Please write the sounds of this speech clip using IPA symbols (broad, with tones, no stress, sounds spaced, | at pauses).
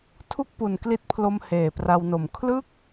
tʰ u˥˩ k̚ p u˨˩ n k l i˦˥ t̚ pʰ l o˧ m h eː˨˩ p r a˧ w n o˨˩ m kʰ l ɯ˥˩ k̚